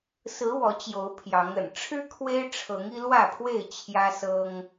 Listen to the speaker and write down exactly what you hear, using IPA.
s ɹ̩˨˦ w ɔ˨˦ t͡ɕ j o˨˦ ʊ̯ pʰ j ɑ˨˦ ŋ ə̰˨˩ n ʈ͡ʂʰ ɻ̩˦ kʰ w e˦ ɪ̯ ʈ͡ʂʰ ɤ˨˦ ŋ i˦ l w ä˥˨ pʰ w e˥˨ ɪ̯ t͡ɕʰ j ä˦ s ɤ˦ ŋ

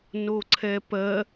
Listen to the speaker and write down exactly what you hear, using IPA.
n o ǀʰ ɛ p ɜ

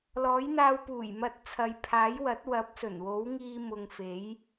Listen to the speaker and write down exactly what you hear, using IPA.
l ɔː˨˥ j n̪ aː˧ w p uː˨˩ j m ɐ˨˥ t̚ t͡sʰ ɐ˨ j pʰ aː˨˥ j w ɐ˨˥ t̚ w ɐ˨˥ p̚ s ɵ˨˩ n w o˨˥ w ŋ iː˧ m ʊ˨ ŋ f e˨˥ j

